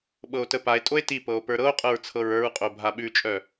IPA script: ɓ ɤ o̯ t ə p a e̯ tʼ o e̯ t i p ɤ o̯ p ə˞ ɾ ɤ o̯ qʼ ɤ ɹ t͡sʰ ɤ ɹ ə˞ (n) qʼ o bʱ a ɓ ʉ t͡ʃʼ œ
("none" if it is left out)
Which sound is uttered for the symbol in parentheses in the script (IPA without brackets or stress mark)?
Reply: ɹ